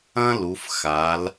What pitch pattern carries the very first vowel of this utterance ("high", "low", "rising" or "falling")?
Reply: high